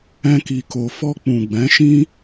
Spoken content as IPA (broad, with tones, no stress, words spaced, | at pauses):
ɛ̃˧ki˨ko˨ fɔ˧k͡pũ˨ɡ͡bɛ̃˨˦ʃĩ˦